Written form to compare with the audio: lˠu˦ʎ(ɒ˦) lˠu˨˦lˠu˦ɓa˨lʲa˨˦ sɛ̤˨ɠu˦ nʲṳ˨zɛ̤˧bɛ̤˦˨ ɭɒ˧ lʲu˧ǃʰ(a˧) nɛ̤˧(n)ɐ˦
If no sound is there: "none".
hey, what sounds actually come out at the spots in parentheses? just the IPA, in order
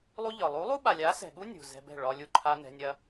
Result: ɒ˨, a˧, nʲ

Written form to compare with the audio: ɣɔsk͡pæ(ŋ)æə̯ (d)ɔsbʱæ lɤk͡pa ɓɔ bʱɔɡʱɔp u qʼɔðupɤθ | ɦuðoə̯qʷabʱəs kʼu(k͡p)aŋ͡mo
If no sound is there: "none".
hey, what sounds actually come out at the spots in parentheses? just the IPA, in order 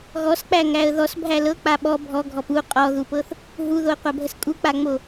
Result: ŋ, ð, k͡p

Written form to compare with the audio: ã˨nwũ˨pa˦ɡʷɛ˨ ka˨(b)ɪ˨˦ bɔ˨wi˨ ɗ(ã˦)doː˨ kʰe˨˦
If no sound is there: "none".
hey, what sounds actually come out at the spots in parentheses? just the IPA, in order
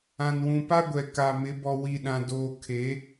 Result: m, ã˨

